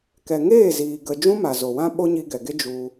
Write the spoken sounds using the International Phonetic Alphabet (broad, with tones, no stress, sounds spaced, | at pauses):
k ɛ˨ ŋ eː˦˨ z iː˨ ɡ ə˧ d͡ʒ ũ˦ m a˨ z o˨ w ã˦ ɓ o˦ ɲ i˧ ɡ ɛ˨ ɡ e˦ d͡ʒ u˧